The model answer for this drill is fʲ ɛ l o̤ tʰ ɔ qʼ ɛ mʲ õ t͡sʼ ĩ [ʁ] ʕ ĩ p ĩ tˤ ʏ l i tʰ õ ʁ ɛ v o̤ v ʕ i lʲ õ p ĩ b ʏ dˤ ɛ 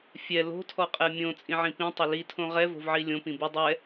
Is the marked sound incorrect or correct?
incorrect